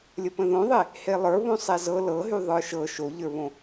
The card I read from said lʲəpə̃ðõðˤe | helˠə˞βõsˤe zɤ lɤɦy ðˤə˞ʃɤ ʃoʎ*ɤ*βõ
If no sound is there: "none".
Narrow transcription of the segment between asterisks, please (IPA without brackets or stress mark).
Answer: ə˞